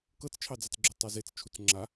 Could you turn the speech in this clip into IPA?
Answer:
k ɤ t͡s t͡ʃʰ ɑ d͡z ɑ t͡s ɡ͡ǁ u tˤ ɛ z e t͡s t͡ʃʰ u t͡s ŋ͡ǁ a

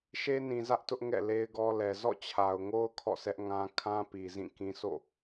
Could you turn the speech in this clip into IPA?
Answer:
ʃ e˦ n ĩ˨ z ä˦ ʔ t ʊ˦ ʔ ŋ ɛ̰˦˨ l e˦ ɪ̯ ɡ ɔ˦ l ɛ˨ z ɔ̰˦˨ t͡ɕʰ a˨ ʊ̯ ŋ o˦ ʊ̯ kʰ ɔ̰˦˨ sʰ ɛ˦ ʔ ŋ ã˦ kʰ ã˦ p i˨ z ĩ˦˨ k ĩ˦ s o̰˦˨

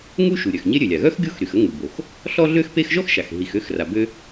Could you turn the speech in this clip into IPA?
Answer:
ŋ u˥ ʃ u˩ ɾʲ œ˩ x ɲ e˥ ɾʲ ø˩ lʲ a˩ ɣ œ˥ x ɡʲ o˥ x ɾ y˩ x ə˥ ŋ u˩ b o˩ x | ɬ ɔ˥ ɮ ø˥ x p e˥ x ʒ ɔ˥ x ʃ a˩ x ɦ i˩ x ø˥ x r a˩ b ø˥

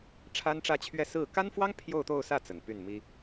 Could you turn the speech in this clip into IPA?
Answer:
ʈ͡ʂʰ a˥ n ʈ͡ʂ ä˥˧ t͡ɕʰ ɥ ɛ˥˧ s ɹ̩˥˩ k a˥ n f w ɑ˥ ŋ pʰ j o˥˧ ʊ̯ t̪ o˥˧ ʊ̯ s ä˥˩ t͡s ə˨˩ n p y˥˩ n m i˥

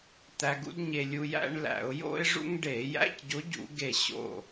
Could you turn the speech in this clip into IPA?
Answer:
t̪ æ˧ ɡ ṵ˥ d ɲ e˧ lʲ u˧ j æ̰˥ ɳ l æ̰˧˩˧ ʊ̯ j o̰˥ ɪ̯ ʐ ṵ˥ ŋ ɖ e˧˩˧ j æ̰˧˥˧ c ɟ o˧˥ ɟ ṵ˧˩˧ ɡ e˧˩ ɕ o̰˧˩

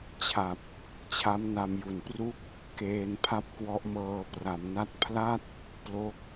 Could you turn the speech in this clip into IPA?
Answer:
t͡ɕʰ a˨˩ p̚ | t͡ɕʰ a˦˥ m n a˧ m j u˨˩ n p r u˥˩ k̚ | k eː˧ n pʰ a˥˩ p̚ k w ɔ˦˥ ʔ m ɤː˧ p r a˩˦ m n a˦˥ t̚ pʰ l a˥˩ t̚ | p l o˦˥ k̚

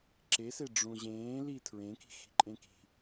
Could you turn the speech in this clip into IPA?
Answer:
ǁ e s e ɖ͡ʐ ũ ʑ ẽː l i tʰ ɹ ẽ k i̤ x i̤ ǃʼ ẽ k i̤

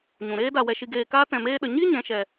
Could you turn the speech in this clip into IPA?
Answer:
ɲ ũ˨ ɾ eː˦ d a˨ w ɛ˨ ʃ i˨ ɡ eː˨ k aː˧ t ɛ̃˨ m eː˦ ɗ ə˨ ɲ i˦ ɲ ɛ̃˨˦ ʃ ɛ˨

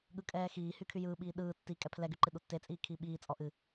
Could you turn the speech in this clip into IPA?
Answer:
ɠ ɯ kʼ ɛː x iː h y kʰ y j ɯː ɓ iː ɗ ɯː tː i kʼ ɛ pʰ l ɛ ɡ y ǃ ɨ ɗ u tː e t͡sʼ iː kʰ iː ɓ iː t͡sʼ ɔ ʔ ɨ

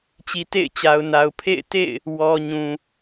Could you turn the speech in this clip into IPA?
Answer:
t͡ɕ i˨ t ḛ˦˨ ɪ̯ t͡ɕ a˨ ʊ̯ n a˨ ʊ̯ pʰ ḛ˦˨ ɪ̯ t ḛ˦˨ ɪ̯ | w ɔ˨ ɲ ũ˨

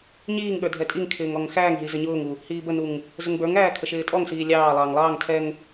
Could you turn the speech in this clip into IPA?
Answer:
ɲ iː ŋ ɠ ə˞ dʱ ɛ tʼ i ŋ kʰ ɪː ŋ ɔ ŋ x æː ŋ ɦ i z ə ɲ ʊː ŋ u | h iː b ə n u ŋ | z ə ŋ b ə˞ ŋ æː kʰ ə ʃ ɪː tʼ ɔ ŋ s iː lʲ ɑː lˠ ɑː ŋ lˠ ɑː ŋ tʰ ɛ ŋ

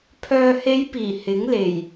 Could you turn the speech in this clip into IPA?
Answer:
pʰ œː˨ h e˨˧ j p iː˨˩ h ɪ˨˥ ŋ l e˨˩ j

